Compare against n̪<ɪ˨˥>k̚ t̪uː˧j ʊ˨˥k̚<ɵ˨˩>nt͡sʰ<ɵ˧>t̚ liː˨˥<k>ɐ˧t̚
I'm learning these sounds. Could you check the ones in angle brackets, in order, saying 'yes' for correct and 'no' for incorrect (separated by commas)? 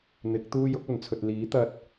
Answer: yes, yes, no, no